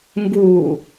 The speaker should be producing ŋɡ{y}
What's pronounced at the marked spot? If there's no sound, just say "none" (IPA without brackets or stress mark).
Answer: u